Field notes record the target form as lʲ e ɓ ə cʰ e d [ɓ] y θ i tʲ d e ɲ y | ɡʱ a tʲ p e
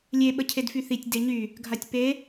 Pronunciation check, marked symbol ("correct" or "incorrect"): incorrect